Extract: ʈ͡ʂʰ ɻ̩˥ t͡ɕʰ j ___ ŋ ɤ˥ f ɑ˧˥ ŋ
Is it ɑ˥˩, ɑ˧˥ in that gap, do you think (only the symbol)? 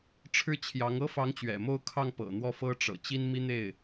ɑ˧˥